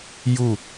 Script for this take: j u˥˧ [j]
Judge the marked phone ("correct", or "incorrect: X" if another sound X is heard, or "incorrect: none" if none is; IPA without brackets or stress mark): incorrect: none